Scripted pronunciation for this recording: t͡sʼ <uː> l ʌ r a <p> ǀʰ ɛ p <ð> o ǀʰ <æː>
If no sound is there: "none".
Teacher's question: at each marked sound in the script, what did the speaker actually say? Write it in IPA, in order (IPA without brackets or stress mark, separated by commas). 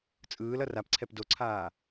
ɯː, p, d, aː